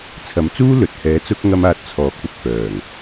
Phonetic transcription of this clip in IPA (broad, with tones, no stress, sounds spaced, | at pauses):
t͡sʰ ɐ˨˥ m t͡s uː˥ l ɵ˨ t̚ h ɛː˨˥ t͡s ʊ˧ k̚ ŋ ɐ˥ m aː˧ t̚ t͡sʰ ɔː˨˥ k̚ p ʊ˨ k̚ f œː˨˩ ŋ